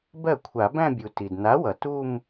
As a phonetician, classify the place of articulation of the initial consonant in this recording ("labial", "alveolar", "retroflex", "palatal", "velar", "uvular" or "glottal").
labial